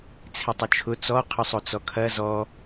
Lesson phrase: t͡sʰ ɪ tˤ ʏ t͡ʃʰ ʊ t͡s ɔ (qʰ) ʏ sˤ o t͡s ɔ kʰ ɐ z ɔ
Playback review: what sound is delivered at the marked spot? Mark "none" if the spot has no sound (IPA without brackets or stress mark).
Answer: qʰ